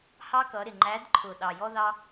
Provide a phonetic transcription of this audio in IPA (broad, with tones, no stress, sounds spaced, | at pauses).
h ɑ˦ k ʌ˨˦ ɾ ɪ˨˩ ŋ͡ǃ æ˨˦ d ǃʰ ʊ˨˩ ɗ ɑ˨˩ j ɔ˦ ð ɑ˦